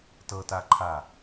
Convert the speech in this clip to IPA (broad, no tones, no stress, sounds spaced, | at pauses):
t ɤ t a ǃʰ a